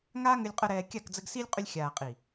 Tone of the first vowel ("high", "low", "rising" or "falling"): high